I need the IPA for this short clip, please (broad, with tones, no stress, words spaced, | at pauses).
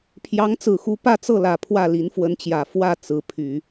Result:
pʰjɑ˧˥ŋt͡sɹ̩˨˩xu˧˥ pä˥˧t͡sɤ˥˩lä˨˩ pʰwä˥˩li˧˥nfwə˧˥nt͡ɕjä˨˩ fwä˥˩ t͡sɹ̩˧˥pʰy˨˩˦